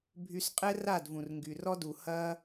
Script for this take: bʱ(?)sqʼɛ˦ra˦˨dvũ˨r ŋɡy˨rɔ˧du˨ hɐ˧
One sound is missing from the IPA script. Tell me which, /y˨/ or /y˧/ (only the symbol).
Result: y˧